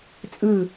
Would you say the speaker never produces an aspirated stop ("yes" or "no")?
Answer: yes